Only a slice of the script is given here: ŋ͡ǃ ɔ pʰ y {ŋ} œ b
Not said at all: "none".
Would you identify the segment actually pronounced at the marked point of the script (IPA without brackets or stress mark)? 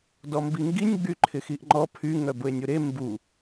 ŋ